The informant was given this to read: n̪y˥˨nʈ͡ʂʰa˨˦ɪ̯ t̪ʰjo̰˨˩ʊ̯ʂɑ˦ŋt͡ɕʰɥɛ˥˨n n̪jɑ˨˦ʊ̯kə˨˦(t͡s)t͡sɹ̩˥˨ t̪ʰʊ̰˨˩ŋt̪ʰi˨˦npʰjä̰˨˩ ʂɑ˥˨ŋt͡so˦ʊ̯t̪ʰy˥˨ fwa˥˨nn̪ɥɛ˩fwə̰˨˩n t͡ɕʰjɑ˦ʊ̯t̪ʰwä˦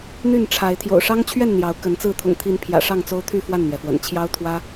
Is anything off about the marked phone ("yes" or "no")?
yes